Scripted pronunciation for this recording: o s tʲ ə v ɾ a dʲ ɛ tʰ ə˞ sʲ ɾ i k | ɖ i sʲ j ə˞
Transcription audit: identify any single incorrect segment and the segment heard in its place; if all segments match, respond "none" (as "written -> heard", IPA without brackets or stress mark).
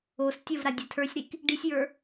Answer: none